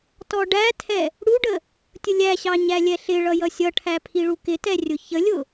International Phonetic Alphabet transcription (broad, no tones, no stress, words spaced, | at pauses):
tɔɖætʰɛ | ɽuɖə | tʲʊlʲæɕɑ ɲælʲɛɬɪɭʌ jʌsʲʌʈʰæ pʰiɭukɪtɛ rʲʊçəlʲʊ